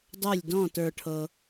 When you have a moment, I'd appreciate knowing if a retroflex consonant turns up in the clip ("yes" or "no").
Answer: yes